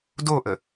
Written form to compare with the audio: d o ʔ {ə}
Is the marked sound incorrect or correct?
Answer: correct